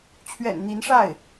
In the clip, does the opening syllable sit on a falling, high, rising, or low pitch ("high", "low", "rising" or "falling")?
low